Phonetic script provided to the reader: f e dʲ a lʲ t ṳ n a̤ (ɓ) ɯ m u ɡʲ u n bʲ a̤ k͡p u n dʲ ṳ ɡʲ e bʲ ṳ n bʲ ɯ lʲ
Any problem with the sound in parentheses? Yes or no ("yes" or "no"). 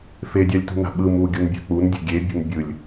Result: no